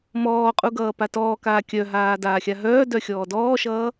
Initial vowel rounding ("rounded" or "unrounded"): rounded